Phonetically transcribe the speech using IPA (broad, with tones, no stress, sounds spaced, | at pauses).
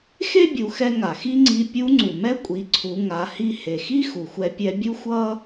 x e˥ bʲ u˩˧ x ɛ˧ ŋ a˩ x i˥ ŋ͡ǀ i˧˥ pʲ u˧˥ ŋ͡ǀ u˩ m ɛ˥ kʷʼ i˩˧ ǀʰ u˩˧ ŋ a˩˧ h i˧ h e˩ x i˥ x u˩ xʷ ɛ˧ pʲ ɛ˧ bʲ u˥ xʷ ʌ˥